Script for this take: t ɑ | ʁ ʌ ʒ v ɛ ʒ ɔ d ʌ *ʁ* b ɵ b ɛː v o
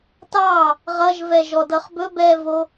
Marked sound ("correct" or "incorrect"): incorrect